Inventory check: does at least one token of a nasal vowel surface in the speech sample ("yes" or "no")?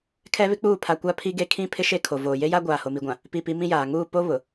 yes